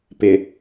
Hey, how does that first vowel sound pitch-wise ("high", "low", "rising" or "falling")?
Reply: low